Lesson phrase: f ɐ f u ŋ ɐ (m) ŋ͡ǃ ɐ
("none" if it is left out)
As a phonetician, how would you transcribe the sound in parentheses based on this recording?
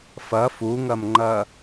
m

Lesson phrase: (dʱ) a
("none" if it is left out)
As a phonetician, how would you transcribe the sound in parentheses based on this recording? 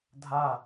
dʱ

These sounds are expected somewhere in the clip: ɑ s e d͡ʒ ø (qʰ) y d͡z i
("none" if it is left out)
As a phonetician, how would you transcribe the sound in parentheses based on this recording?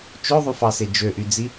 ʔ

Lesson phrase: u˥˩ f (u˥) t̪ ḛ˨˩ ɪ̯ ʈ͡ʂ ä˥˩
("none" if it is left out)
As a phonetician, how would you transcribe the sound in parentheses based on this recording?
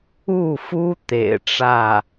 u˥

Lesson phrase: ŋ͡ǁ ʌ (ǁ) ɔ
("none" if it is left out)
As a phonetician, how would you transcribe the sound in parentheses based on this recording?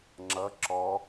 ǁ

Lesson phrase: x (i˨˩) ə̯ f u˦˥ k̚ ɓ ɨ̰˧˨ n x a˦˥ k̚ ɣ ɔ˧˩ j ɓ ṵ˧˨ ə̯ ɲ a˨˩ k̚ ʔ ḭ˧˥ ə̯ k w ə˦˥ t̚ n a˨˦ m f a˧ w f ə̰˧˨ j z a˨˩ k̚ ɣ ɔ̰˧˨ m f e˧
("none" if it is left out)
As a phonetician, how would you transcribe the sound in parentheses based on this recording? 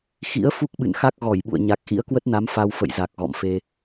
ḭ˧˥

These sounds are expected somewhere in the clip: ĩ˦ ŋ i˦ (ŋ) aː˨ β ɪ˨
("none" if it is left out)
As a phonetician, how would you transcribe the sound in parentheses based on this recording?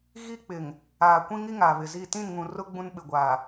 ŋ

